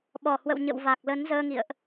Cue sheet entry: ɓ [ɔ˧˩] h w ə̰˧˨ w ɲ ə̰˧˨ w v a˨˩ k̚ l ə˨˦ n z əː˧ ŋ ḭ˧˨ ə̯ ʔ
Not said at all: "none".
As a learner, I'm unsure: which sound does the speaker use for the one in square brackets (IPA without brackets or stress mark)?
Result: ɔ˧˩